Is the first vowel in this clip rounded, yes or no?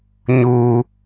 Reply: yes